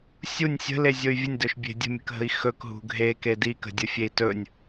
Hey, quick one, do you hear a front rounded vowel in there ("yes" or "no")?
yes